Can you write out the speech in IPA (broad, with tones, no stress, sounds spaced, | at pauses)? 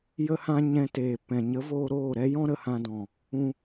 j ə˧ h ã˧ ɲ ɛ̃˧ t eː˨ p ɛ̃˨ ɲ ə˨˦ v oː˧ ɾ oː˦˨ ɾ ɛ˦ j ɔ̃˦ ɾ ə˨ h ã˧ d ɔ̃˨ | ũ˧